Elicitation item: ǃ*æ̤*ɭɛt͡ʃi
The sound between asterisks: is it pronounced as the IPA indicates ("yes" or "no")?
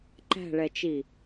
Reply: yes